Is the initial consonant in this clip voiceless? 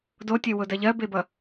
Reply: no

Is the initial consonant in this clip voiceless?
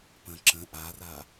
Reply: yes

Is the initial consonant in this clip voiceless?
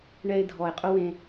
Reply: no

